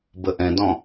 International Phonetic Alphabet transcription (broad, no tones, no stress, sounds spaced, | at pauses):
b ə ʔ ɛ̃ d ɔ̃